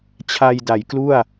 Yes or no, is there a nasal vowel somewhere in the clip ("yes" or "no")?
no